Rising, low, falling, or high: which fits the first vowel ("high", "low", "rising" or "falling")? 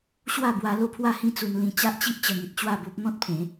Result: falling